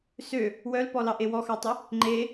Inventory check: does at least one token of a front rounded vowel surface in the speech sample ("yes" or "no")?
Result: yes